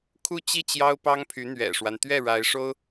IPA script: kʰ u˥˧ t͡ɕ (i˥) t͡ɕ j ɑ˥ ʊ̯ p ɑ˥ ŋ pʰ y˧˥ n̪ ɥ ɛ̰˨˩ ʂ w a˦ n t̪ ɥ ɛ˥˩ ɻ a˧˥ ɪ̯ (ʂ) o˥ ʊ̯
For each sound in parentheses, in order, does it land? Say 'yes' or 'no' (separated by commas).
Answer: no, yes